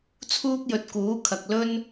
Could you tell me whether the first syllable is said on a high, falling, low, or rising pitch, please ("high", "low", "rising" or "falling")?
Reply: high